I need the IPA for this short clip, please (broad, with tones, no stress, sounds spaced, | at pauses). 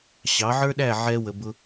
ɕ ɑ˩˥ ʕ ə˞˥ ɗ æ˥˩ ʕ ɛ˧ w ə˩ b ʊ˧